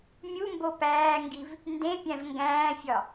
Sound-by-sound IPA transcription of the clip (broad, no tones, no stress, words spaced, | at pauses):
mʲumbo pæːŋɡiv | ndẽpʲæ̃v ŋɡæ̃ːfʲɒ